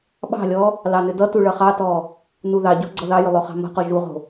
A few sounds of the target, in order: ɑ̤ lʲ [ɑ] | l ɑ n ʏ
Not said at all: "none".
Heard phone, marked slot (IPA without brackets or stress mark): ɔ